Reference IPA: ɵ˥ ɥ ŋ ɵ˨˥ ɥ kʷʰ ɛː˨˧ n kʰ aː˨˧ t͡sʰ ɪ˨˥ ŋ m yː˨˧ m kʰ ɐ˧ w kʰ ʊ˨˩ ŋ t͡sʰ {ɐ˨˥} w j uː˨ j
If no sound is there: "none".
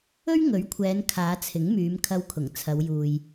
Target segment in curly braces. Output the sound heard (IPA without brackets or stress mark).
ɐ˨˧